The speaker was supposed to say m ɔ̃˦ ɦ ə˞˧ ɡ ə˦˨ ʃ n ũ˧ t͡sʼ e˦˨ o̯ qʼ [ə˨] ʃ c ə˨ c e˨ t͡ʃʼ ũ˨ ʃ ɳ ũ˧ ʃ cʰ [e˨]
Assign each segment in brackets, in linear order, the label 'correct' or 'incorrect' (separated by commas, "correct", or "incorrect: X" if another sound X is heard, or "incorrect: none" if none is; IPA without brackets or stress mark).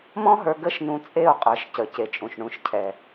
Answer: incorrect: ə˞˨, incorrect: ɛ˨